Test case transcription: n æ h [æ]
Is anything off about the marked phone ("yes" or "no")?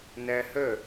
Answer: yes